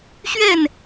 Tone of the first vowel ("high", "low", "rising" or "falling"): falling